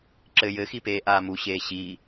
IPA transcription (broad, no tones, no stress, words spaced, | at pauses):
ǁɘ jɘxipeːʔaː muɕeː ɕi